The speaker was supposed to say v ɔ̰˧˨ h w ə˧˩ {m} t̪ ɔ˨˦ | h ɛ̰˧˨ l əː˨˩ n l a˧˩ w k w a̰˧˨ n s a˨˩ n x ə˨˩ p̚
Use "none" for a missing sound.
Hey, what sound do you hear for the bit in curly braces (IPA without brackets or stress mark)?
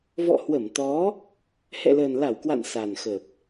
m